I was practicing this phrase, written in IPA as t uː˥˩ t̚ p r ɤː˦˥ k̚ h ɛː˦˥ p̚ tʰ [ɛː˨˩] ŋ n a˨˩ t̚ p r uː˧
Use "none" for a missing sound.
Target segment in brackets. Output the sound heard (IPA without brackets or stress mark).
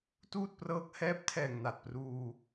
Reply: ɛː˨˩